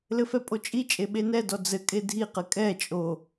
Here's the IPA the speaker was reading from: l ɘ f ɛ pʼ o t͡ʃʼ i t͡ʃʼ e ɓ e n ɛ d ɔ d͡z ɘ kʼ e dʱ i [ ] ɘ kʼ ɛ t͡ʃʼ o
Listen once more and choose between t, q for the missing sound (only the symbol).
q